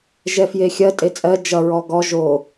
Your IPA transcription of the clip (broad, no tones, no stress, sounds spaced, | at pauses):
ʒ ɛ f j e xʲ ɜ tʼ e t͡sʼ ɜ d͡ʒ ʌ ɹ ɔ ɡ ɔ ʒ o